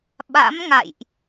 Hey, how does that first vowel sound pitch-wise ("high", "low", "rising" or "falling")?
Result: rising